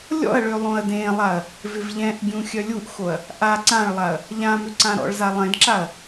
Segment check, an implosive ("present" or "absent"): absent